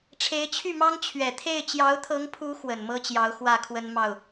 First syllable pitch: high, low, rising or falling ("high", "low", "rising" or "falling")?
rising